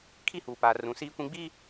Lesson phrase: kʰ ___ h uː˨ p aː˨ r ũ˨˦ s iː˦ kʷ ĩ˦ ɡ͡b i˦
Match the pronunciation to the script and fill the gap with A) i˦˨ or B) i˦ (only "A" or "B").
A